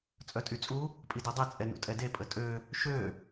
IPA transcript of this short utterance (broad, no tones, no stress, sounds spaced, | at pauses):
t͡sʼ œ tʼ y t͡sʼ u | pʼ i d œ dˤ e t͡sʼ ɛ n ṵ tʼ ɛ d e pʼ ə tʼ ø | ʃ ø